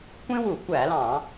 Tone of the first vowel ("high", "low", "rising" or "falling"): high